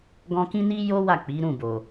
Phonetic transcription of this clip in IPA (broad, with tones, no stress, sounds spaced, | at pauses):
ɡ ɔ̃˧ k ĩ˦ n i˦ j o˦ w a˦˨ k͡p i˨˦ ɾ ũ˦˨ b o˨